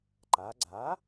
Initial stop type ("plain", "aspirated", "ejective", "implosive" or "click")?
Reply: click